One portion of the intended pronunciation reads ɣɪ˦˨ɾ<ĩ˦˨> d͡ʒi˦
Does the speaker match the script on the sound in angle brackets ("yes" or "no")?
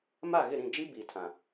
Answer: yes